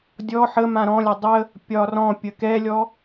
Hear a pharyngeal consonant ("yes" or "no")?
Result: yes